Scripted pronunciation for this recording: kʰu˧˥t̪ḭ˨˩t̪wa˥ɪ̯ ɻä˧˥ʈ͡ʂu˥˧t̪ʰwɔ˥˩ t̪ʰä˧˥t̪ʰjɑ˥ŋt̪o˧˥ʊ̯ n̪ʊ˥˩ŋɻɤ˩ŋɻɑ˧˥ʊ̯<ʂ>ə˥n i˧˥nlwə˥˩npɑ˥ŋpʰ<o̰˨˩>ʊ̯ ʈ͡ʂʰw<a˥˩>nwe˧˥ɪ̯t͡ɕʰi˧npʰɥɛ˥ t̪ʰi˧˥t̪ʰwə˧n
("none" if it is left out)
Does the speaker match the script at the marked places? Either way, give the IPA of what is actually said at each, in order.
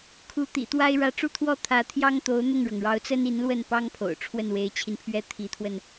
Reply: t͡s, o̰˨˩, ə˥˩

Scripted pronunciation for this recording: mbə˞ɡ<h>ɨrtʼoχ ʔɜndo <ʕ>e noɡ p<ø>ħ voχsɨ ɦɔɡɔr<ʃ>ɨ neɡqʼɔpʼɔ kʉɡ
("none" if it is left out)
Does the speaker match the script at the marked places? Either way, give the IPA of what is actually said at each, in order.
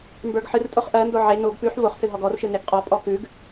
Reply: ħ, ʕ, ʉ, ʃ

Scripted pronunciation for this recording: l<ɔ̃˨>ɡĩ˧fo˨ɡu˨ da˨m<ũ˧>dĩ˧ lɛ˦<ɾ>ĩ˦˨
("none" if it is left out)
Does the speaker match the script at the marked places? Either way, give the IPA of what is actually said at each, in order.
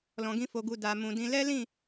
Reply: ɔ̃˨, ũ˨, l

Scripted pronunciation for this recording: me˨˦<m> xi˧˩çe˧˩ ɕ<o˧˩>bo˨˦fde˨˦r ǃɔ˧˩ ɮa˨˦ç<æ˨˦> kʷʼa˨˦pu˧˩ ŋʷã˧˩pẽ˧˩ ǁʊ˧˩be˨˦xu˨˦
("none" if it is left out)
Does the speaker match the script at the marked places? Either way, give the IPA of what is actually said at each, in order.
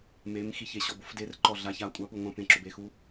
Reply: m, ɔ˧˩, a˨˦

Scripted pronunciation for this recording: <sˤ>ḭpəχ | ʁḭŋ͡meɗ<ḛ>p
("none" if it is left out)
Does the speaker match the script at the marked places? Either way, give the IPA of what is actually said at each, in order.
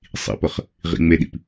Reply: sˤ, ḭ

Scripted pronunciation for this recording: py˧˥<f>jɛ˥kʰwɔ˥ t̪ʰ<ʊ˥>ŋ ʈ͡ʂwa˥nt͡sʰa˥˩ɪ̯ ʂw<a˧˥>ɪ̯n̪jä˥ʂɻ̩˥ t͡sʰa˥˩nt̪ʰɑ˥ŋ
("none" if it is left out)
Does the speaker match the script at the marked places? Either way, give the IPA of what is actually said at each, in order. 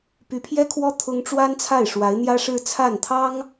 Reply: pʰ, ʊ˥, a˧˥

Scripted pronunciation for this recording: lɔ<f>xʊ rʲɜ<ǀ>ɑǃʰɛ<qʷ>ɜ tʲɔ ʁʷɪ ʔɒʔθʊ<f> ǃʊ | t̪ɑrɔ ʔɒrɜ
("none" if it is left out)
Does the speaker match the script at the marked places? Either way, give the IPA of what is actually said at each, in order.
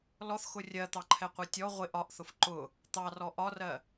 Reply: θ, t̪, qʷ, f

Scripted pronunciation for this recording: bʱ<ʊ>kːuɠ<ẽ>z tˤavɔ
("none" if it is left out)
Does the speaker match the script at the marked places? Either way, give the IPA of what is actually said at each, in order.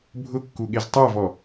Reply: ʊ, e

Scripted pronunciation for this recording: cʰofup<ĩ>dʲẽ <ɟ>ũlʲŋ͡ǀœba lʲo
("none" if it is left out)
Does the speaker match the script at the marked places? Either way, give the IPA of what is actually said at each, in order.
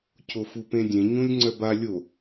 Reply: ẽ, ɲ

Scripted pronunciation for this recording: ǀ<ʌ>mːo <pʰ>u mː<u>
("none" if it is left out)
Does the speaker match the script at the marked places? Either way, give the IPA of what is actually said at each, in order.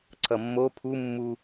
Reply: ʌ, pʰ, u

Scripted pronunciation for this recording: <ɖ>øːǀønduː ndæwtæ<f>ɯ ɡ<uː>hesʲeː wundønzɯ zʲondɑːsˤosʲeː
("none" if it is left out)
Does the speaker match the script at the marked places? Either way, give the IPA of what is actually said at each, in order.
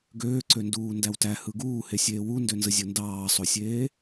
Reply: ɡ, h, uː

